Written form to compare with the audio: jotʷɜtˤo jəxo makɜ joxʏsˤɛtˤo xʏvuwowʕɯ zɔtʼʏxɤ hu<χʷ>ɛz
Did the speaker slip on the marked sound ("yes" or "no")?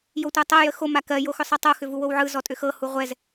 yes